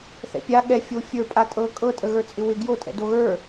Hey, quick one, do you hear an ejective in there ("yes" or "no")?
yes